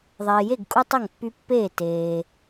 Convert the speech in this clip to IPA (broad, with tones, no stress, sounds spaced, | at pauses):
ðˤ eː˨ j e˥˨ ɡ kʼ u˦ tˤ ʌ˥˨ ŋ pː y˦ pː eː˥˨ t eː˨